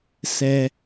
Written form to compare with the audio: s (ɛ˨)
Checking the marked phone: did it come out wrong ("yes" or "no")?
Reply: no